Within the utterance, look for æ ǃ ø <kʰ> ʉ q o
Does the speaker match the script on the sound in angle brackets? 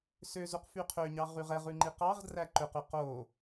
no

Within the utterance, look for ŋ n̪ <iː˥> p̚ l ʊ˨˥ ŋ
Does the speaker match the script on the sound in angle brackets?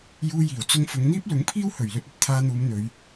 yes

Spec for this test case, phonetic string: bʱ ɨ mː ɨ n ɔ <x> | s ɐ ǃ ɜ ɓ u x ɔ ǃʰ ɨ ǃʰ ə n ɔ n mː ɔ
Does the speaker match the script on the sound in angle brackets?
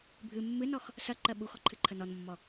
yes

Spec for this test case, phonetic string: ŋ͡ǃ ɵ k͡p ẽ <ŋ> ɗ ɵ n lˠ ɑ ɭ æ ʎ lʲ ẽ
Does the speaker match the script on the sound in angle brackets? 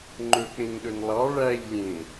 yes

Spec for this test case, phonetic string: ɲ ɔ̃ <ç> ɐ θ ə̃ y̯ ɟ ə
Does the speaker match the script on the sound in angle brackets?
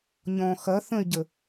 no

